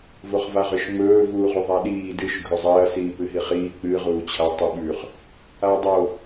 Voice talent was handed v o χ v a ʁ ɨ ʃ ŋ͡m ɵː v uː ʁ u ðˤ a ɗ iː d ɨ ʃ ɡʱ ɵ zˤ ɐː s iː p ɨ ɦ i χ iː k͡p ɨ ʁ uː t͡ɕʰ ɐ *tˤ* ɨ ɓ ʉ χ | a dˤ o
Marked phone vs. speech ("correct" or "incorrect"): correct